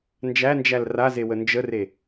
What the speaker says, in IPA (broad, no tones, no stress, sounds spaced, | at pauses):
n d͡ʒ æ n d͡ʒ æ l r a z e w ə n d͡ʒ ə r e